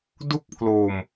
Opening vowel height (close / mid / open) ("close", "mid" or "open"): close